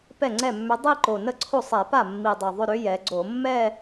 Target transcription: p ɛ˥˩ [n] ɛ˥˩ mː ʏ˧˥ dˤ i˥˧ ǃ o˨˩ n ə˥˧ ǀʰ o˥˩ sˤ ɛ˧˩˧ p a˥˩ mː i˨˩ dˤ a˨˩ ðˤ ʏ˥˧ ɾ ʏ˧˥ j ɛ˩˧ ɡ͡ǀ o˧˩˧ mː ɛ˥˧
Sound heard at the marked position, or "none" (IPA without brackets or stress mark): ŋ͡ǀ